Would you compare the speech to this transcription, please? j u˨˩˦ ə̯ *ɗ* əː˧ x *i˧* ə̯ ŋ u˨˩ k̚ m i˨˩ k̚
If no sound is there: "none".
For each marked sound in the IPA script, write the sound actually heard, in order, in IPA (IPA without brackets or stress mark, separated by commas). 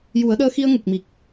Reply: ɗ, i˧